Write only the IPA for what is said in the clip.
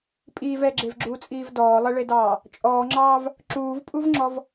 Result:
pʼ iː v ɛ ɡ͡ǁ e v ɡ͡ǁ uː t͡sʼ iː v d ɔː lˠ ɛ ɭ e d ɑː | t͡ʃʼ ɔː ŋ͡ǁ ɑː v | ǁ uː v pʼ u v ŋ͡ǁ ɔ v

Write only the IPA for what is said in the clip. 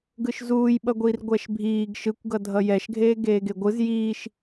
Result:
ɡ ɯ ʃ z uː j ɓ ʌ ɡʷ iː r ɡʷ ɛ ʃ bʱ iː ɡ ʃ ɯ kʷ ɡ ʌ dʱ ʌ j ɛ ʃ ɡʱ eː ɡ eː ɡ e ɡʷ ɯ z j iː ʃ

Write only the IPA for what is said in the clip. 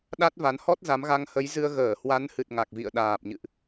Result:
ɗ a˦˥ t̚ v a˨˦ n h ɔ˦˥ t̚ z a˨˦ m ɣ a˧ ŋ h ə˨˦ j z ɨ˧ ə̯ ɣ əː˧˩ h w a˨˦ n h ɨ˨˩ t̚ ŋ a˨˩ k̚ v ḭ˧˨ ə̯ ɗ aː˨˩ p̚ ɲ ɨ̰˧˨ ʔ

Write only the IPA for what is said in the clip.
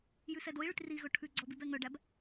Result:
j ʉ s ɛ d o i̯ ɭ y t r i ɣ ɵ ʈʰ ʉ ɡ͡ǀ ɔ b i b ɛ ŋ œ ɖ æ b

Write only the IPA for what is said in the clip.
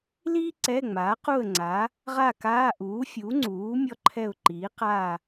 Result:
l iː˥ ǀ ɛ˧˥˧ ŋ͡m aː˩˥ q u˥˨ ə̯ ŋ͡ǀ a˩˥ | ʁ a˥˨ k aː˧˥˧ ʔ uː˩˥ fʲ u˩˥ ŋ͡ǀ uː˩˥ mʲ ɔ˥ ǃʰ ɛ˥˨ ʊ̯ ǃ iː˩˥ q aː˥˨

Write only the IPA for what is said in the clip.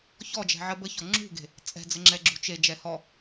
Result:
ç ɔ d͡ʒ ɛ̤ ʕ ə b ə ç ɔ ŋ͡ǁ ṳ ɡ e̤ | t͡sʼ ɛ̤ d͡z ə ŋ͡ǁ ɛ ɡ͡ǁ ṳ t͡ʃ e d͡ʒ ɛ h ɔ

